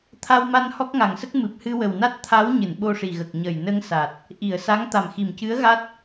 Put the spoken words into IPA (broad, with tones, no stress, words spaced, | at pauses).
t̪ʰa˧wma˧n hɔ˦˥k̚ŋa˨˩ŋsə˦˥k̚ mɨ˨˩p̚hɨ˧wə˨˩wna˦˥t̚ t̪ʰa˧˥w ɲɨ˨˩˨nɓo˧ʂi˨˩ɣə˨˩k̚ ɲə˨˩jnə˧ŋsa˨˩t̚ | ʔi˨˩˨ə̯sa˧˥ŋ t̪a˨˩mxi˨˩mcɨ˧˥ə̯ ɣa˦˥t̚